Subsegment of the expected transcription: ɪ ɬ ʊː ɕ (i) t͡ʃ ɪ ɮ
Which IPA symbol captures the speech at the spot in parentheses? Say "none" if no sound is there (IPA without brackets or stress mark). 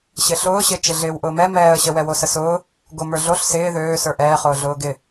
ɪ